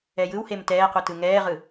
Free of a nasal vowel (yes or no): yes